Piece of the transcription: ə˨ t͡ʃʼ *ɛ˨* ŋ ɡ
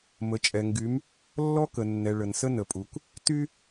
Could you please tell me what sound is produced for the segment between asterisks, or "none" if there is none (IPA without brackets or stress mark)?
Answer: ɛ˨